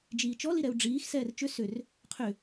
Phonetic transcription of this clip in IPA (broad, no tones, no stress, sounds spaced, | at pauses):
d͡ʒ iː t͡ʃ ɔ l i ɾ ɛ u̯ ɖ͡ʐ iː x s ɛː r t͡ʃ ʏ s ʏ r | qʰ ʏ